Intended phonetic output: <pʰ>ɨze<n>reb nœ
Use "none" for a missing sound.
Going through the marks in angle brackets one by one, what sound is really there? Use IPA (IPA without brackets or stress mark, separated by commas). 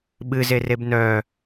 ɓ, none